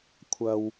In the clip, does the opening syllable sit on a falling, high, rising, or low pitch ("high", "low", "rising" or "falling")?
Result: low